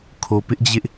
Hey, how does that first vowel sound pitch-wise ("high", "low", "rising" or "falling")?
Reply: low